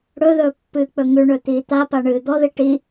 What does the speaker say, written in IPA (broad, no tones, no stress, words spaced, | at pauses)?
ɽɵðɵː pːɨːk͡pɵŋʉɳɵ t̪iːt̪apa ɳɨːd̪ɔði ʈi